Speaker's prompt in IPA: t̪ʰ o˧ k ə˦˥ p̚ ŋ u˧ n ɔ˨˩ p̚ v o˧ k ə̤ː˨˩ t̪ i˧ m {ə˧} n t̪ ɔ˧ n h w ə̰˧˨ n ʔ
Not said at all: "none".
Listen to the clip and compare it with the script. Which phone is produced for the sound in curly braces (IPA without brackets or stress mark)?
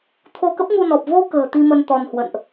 ə˧